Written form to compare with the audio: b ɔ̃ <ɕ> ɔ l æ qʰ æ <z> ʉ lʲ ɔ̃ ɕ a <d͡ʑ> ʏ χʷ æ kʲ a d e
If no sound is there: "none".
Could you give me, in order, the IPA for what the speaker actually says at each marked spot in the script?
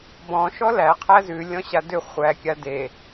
ʃ, z, d

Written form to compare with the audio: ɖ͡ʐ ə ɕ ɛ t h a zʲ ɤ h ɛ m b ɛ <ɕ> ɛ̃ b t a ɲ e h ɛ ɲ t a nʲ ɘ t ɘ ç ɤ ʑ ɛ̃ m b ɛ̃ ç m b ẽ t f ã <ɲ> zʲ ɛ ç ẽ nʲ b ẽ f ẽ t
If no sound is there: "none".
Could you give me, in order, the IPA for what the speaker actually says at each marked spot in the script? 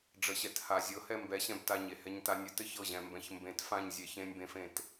ɕ, ɲ

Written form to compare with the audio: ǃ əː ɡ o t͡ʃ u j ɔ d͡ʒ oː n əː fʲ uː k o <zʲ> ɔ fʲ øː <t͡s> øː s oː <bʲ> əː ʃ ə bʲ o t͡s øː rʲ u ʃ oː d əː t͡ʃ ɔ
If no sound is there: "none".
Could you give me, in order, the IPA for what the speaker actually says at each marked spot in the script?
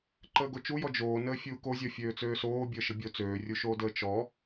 zʲ, t͡s, bʲ

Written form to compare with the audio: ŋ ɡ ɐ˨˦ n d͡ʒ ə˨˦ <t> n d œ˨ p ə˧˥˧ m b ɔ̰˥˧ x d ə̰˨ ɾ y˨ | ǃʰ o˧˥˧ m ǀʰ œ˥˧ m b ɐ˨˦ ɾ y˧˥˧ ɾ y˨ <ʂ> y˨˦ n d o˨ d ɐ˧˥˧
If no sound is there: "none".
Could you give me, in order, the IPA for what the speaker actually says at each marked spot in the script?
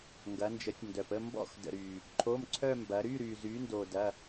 tʲ, z

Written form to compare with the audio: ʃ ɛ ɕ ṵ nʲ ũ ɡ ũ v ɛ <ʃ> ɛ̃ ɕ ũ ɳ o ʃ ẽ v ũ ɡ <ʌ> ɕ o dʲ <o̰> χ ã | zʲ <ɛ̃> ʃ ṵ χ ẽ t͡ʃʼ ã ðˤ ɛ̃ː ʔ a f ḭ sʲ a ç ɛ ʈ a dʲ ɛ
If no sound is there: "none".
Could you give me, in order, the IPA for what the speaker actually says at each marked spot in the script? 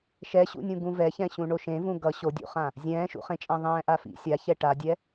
ç, ʌ, ṵ, ɛ̃ː

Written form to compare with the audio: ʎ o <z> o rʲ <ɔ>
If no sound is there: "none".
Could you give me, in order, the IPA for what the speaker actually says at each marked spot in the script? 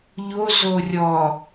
z, ɔ

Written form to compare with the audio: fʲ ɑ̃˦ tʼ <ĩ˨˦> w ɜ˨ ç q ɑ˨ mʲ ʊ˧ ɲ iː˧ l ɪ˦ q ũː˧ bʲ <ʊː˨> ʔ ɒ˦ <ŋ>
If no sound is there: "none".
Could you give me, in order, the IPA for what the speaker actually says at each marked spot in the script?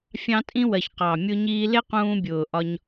ĩ˦, ʊː˨, ɲ

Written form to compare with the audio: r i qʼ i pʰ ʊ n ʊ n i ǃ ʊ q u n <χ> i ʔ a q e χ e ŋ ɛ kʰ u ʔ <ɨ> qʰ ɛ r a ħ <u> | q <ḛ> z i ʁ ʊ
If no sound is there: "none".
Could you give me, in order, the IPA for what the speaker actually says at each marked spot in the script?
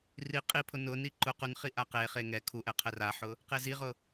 χ, ɛ, ʊ, e

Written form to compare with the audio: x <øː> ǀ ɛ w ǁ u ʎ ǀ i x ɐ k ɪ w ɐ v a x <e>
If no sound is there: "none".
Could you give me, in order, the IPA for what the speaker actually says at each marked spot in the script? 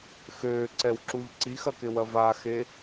øː, e

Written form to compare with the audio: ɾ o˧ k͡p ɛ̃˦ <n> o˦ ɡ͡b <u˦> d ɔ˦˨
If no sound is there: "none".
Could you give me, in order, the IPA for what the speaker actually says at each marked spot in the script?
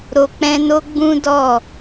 n, ũ˦

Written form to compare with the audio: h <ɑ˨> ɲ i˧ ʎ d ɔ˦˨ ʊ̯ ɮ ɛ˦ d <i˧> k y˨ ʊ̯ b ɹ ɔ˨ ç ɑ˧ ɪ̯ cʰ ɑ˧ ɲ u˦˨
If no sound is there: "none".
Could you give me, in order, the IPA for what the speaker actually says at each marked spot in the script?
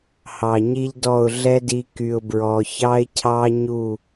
ɑ˨, i˧

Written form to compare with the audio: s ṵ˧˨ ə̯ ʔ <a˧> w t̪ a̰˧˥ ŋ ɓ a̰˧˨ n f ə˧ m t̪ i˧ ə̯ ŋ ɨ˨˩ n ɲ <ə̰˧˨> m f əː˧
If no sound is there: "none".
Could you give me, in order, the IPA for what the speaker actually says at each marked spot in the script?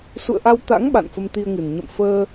a˧, ə̰˧˨

